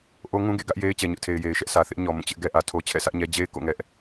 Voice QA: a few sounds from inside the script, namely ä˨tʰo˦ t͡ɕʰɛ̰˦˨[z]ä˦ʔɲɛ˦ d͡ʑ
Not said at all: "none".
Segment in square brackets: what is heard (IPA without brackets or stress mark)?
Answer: s